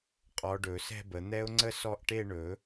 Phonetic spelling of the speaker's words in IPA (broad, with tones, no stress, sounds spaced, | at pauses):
qʼ ɔ˨˦ ɖ ɵ˨˩˦ s ɛ̤˥˧ b ə˨˩˦ n̪ ɛ˦˥ ʊ̯ ŋ͡ǀ ə˥˧ s ɔ˥˩ ʔ ʈ e˥˧ ɳ ɵ˨˩˦